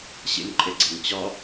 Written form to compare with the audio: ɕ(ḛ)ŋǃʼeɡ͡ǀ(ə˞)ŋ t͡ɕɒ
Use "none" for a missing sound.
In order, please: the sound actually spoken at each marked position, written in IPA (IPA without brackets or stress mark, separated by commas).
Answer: ḛ, ɤ